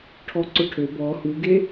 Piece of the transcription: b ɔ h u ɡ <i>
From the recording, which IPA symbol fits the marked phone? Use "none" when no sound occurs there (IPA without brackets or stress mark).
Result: e